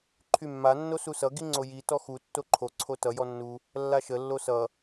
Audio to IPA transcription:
ǃʰ y mː a nː o s u s ʌ ɡ i ŋ͡ǀ o j i t ɔ x u tː o ǃʰ o ǀʰ o t ʌ j ɔ nː u | lː a ʃ ə lː o s ʌ

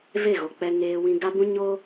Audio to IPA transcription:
v e˦˨ ɣ o˨ k͡p ɛ˦ ŋ eː˦ w ĩ˦ ɡ a˦ b ũ˦ ɲ o˦

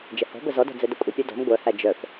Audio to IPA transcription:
d͡ʒ ə h ɔ̤ b ə z ɔ d ɔ̤ d͡z ɛ d ə kʷʼ ə pʲ ɛ d ɔ̤ m ɡʷ œ h æ d͡ʒ œ f

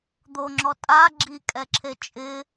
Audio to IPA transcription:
d̪ o ŋ͡ǁ ɔ tʼ a ɡ͡ǁ i kʼ ɛ ǁʰ e t͡ʃʼ ɪ

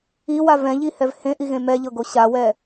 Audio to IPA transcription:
i w a v ɛ̃ ʎ i h ɛ v h ẽ ʔ i ɣ ẽ m ɛ ʎ ɤ ɡ o ɕ a w ɛ

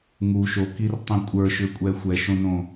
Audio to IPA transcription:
ŋ u ʃ o k i r tˤ ĩ kʷʼ ə˞ ʃ ʏ kʷʼ ɛ xʷ ɛ ʃ õ n õ

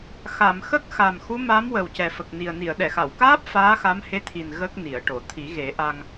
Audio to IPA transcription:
x a˨˩˨ m x ə˦˥ k̚ x a˨˩ m x u˧˥ m a˧˥ m w ə˨˩ w c ɛ˨˩ f ə˨˩ k̚ n i˨˩ ə̯ n i˨˩˨ ə̯ ɗ ɛ˨˩˨ x a˨˩˨ w k aː˦˥ p̚ f aː˧˥ x a˧˥ m h e˧˥ t̪ʰ i˨˩ n ɣ ə˦˥ k̚ n i˨˩˨ ə̯ ʈ o˨˩˨ t̪ʰ i˨˩˦ ɣ e˨˩˦ ʔ a˧ ŋ

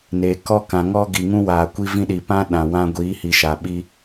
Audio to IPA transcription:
n eː˨ k ɔ˦ k ã˨ ŋ ɔ˦ ɡ i˨ ŋ ũ˦ w aː˨ kʷ i˦ v ĩ˦ ɗ i˨ p ã˦ ɗ ã˨ w ã˦ ɡʷ iː˨˦ h i˨ ʃ a˨ ɓ i˦

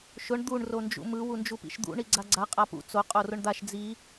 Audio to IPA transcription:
ʃ ʊ ɳ d̪ u ɳ r o n d͡ʒ ṵ m ɯ w u n d͡ʒ u p ḭ ʃ d̪ ṵ ɳ i ɡ͡ǀ a ɡ͡ǀ a qʼ a p ṵ t͡s o qʼ o r ʊ ɳ d̪ a ʃ d͡z i

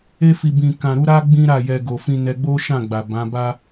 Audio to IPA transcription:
e˧ f i˨ b ĩ˨ k ã˨ ɾ u˧ ɾ a˦ ɡ͡b ĩ˦ ɾ a˦˨ j ɛ˧ ɡ o˨ f ĩ˧ n ɛ˧ ɡ͡b o˦ ʃ ã˦˨ ɡ͡b a˨ b ã˨˦ b a˦

